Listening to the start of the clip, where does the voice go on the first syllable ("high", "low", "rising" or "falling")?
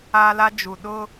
high